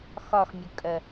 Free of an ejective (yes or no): no